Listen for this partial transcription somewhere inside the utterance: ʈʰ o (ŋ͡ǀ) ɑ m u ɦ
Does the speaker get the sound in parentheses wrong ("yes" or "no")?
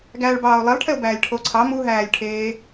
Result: yes